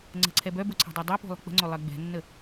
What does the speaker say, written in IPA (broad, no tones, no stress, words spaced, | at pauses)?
ŋ͡ǀə̤ǀʰɛ bœbo ǀʰɛ̤dˤɛdˤœpo̤ lˠə̤k͡pə̤ŋ͡ǀo lˠɜɡ͡bɛ̤nːə